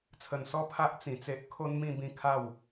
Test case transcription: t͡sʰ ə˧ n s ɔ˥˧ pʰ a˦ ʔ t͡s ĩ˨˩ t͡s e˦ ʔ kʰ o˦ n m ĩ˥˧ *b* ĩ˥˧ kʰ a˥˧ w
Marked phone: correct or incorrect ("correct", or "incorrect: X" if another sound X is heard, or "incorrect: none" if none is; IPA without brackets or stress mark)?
correct